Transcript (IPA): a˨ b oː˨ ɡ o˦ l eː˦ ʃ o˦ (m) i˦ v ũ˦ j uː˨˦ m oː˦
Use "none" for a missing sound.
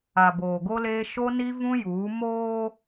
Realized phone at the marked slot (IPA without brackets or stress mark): n